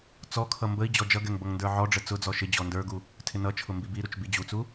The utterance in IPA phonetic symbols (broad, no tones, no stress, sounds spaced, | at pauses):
t͡s ɔ kʰ ʌ m b ə i̯ d͡ʑ ɔ d͡ʒ ʌ ɡ ɛ ŋ b ʌ ŋ n d ə˞ ʕ ɔ ɖ͡ʐ ə t͡s ʊ d͡z ɔ ʃ ɪ d͡ʑ ɔ n d ə˞ ɡ u | tʰ ɪ n ʌ t͡ʃʰ ʊ m b i b i ɾ u t͡ʃ b i d͡ʑ u t͡s u